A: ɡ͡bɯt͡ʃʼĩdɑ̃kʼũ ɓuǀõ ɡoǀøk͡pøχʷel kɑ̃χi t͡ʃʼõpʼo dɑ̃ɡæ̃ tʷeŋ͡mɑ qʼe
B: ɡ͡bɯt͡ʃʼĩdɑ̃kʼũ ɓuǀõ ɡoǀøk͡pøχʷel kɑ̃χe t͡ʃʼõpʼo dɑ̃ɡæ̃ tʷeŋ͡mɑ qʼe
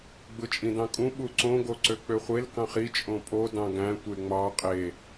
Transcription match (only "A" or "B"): A